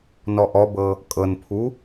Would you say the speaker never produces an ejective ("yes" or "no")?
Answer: no